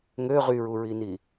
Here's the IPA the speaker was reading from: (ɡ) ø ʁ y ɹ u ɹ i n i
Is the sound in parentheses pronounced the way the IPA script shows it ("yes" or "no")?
no